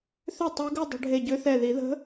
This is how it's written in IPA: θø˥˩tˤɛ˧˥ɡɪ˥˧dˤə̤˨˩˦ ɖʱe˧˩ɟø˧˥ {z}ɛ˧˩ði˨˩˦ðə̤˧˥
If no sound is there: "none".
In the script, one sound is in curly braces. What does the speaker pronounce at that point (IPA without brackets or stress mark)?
θ